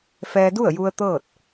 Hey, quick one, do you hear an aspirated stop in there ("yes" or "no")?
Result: no